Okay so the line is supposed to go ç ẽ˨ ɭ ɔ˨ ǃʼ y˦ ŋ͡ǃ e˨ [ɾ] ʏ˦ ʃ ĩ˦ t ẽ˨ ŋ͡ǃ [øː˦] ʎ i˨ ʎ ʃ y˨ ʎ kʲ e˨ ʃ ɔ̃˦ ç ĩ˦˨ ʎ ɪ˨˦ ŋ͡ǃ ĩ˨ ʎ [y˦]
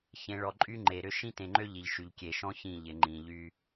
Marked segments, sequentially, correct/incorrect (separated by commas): correct, incorrect, correct